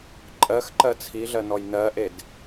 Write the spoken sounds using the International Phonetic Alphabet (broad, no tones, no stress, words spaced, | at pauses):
ǃʼɜxǃɜ t͡sʰiɮɜ nɔjnɜʔed